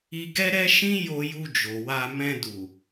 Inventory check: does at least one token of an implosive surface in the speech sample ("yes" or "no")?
no